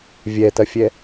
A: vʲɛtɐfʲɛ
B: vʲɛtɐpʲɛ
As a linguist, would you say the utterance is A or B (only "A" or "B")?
A